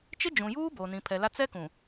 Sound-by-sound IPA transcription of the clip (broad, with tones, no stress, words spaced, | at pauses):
t͡ʃɪ˦d͡ʒũ˨juː˦ boː˨nĩ˨pʰɛ˨la˦ t͡sɛ˦kũ˨